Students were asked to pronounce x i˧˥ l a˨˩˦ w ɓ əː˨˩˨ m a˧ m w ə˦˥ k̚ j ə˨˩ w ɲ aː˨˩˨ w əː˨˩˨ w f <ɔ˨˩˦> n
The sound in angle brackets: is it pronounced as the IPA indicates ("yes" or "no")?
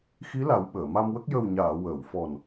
no